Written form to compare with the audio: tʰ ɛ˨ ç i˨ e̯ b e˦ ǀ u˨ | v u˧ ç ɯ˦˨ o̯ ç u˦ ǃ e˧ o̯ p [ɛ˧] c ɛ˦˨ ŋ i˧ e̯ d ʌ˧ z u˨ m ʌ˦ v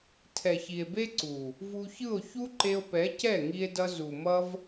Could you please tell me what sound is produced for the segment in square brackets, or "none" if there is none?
ɛ˨˦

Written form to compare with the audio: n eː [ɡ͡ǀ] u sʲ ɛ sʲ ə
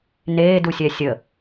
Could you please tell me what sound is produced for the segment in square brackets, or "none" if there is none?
d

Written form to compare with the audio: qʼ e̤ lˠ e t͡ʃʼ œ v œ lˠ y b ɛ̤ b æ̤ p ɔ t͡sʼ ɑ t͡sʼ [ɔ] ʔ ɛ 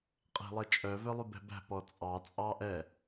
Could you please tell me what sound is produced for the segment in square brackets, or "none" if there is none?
ɑ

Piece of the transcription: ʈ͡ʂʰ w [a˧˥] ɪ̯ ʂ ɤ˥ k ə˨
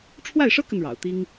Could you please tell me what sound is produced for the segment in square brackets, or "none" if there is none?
a˥˩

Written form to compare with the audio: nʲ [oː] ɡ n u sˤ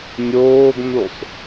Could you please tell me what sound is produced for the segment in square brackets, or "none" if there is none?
oː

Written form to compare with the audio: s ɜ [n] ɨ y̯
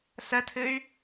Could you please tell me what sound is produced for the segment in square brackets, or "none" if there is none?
tʰ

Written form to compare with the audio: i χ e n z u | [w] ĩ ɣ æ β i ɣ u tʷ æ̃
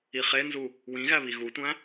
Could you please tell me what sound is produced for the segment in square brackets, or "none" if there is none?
w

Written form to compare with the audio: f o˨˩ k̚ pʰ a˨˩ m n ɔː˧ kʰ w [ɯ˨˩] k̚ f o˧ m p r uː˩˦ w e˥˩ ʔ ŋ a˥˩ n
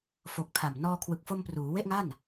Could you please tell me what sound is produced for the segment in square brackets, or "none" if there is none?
ɯ˨˩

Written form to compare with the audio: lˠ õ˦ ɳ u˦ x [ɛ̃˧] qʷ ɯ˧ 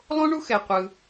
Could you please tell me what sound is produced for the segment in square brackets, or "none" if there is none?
ɛ˧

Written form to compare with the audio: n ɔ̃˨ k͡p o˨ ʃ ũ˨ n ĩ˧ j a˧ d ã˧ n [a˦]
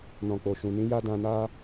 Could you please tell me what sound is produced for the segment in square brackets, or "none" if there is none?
a˦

